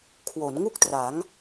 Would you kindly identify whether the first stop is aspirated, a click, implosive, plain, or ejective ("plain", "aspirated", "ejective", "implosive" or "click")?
aspirated